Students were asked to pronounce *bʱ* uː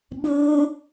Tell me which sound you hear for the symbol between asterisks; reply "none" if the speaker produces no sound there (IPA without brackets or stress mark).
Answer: ɓ